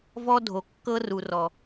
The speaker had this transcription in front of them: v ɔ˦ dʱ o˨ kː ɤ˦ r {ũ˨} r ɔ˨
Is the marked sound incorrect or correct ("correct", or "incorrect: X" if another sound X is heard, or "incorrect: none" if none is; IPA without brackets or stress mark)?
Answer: incorrect: u˨